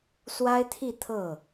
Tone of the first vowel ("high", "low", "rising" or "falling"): high